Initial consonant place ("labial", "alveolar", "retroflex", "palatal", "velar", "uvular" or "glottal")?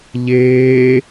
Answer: palatal